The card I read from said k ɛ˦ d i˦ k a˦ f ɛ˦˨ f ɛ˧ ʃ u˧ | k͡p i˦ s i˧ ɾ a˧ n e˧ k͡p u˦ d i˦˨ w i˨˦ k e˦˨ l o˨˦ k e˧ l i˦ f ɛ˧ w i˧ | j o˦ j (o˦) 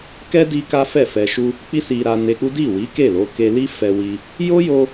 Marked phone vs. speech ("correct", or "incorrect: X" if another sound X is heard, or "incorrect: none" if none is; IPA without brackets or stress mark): incorrect: o˧